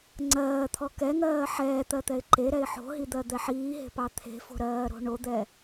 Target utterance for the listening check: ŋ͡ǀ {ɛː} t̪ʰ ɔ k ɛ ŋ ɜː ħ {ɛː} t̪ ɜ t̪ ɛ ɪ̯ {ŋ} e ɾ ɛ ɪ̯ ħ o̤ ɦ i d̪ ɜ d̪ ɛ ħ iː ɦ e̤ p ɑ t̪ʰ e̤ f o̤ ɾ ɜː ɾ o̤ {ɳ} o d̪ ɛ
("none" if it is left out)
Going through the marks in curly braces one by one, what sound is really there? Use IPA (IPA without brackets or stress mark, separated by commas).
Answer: ɜː, ɛː, ǃ, ɳ